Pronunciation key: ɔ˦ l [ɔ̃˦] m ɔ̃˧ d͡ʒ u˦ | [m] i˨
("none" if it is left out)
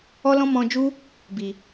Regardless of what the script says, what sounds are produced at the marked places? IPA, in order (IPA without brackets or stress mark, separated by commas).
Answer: ɔ̃˦, b